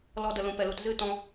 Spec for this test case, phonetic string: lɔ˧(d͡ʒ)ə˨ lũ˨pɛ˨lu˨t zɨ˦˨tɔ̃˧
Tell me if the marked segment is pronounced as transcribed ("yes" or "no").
no